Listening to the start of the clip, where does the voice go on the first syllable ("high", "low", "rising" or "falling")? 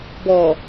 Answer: low